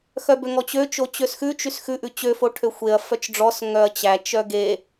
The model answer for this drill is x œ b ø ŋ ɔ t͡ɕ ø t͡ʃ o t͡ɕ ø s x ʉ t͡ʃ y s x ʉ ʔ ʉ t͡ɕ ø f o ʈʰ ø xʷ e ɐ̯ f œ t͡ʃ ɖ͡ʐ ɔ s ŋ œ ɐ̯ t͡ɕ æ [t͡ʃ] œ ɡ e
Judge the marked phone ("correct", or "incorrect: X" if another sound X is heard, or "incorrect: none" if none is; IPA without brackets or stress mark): correct